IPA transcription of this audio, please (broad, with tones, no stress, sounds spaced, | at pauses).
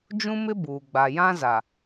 d͡ʒ ũ˦ m ɪ˦ b uː˨ ɡ͡b a˨ j ã˦ z a˨